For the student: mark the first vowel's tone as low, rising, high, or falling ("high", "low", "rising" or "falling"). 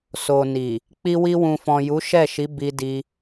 low